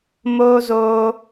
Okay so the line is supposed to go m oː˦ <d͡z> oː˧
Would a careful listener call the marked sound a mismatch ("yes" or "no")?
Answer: yes